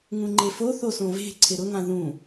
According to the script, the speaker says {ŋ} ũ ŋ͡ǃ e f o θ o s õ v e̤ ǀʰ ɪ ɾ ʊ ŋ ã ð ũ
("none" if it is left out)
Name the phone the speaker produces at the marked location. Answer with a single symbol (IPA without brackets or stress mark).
ŋ